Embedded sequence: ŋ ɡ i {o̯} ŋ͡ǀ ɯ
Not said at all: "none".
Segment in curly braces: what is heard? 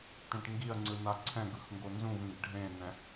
ɐ̯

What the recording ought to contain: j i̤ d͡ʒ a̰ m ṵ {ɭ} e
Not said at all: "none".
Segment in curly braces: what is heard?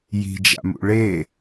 ɭ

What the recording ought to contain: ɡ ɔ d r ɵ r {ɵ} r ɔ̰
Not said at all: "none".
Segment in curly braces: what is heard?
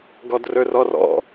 ɔ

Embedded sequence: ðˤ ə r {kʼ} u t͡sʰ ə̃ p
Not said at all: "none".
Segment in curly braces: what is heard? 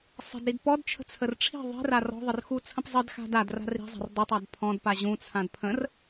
x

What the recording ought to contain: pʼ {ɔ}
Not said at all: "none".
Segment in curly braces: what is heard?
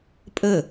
ə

